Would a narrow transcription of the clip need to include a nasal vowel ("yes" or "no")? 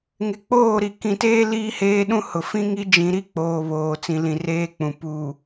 yes